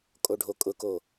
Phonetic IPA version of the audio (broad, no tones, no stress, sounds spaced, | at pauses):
kʼ o ɖʱ o kʼ ʊ k o